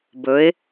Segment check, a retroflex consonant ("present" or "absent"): absent